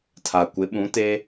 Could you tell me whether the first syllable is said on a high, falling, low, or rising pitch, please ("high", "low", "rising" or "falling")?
low